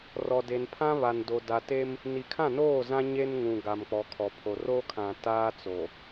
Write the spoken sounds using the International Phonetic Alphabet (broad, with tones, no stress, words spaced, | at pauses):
rɔ˨de˨npʰã˦ βa˨ndo˨da˨te˦m | ni˨kʰã˦˨noː˦˨zã˦ ɲe˦nŋũ˨ ɡa˨mk͡pɔ˨kʰɔ˨pʰo˨ ro˦kʰã˨ taː˦ t͡so˨